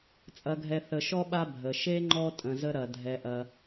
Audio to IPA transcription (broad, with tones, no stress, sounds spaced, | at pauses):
t͡sʼ ɐ˨ ɡʱ ɛ˨ θ ə˨ ʃ ɔ˥ ɓ a˦ bʱ ə˩ ʃ e˥ ŋ͡ǃ ɔ˦ tʼ ə̃˨ z ə˥ ɾ ɐ˩ dʱ ɛ˩ ʔ ɐ˩